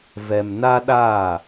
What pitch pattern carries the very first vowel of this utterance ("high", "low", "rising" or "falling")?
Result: low